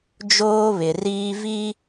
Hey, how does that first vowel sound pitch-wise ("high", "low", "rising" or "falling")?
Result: high